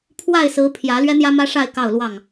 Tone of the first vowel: falling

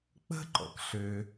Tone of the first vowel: high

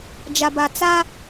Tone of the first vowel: low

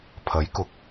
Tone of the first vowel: rising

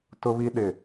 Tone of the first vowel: high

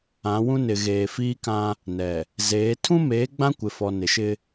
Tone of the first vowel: rising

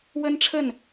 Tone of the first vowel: high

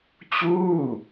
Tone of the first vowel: falling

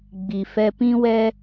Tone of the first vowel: low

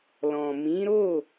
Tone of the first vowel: low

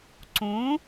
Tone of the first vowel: rising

